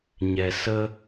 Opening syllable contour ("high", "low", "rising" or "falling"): low